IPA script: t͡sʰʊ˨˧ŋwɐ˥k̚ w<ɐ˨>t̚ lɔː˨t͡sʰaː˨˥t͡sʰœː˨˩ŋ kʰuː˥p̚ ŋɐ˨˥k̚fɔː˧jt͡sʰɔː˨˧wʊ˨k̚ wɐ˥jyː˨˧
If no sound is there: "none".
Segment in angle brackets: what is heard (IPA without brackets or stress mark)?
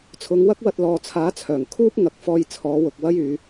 ɐ˨